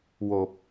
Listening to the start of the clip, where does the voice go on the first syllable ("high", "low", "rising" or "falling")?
low